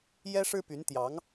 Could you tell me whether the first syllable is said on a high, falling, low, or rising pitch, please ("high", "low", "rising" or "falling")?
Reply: high